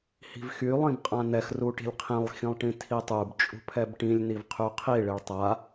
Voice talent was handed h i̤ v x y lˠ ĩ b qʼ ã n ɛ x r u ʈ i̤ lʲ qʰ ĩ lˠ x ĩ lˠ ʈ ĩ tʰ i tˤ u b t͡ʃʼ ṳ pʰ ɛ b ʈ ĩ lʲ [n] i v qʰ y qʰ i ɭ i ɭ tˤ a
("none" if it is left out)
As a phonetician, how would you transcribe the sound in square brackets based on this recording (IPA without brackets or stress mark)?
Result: n